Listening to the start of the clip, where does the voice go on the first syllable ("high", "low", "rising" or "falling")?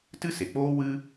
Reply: high